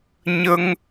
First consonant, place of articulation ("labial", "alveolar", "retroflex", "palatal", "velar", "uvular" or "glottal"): palatal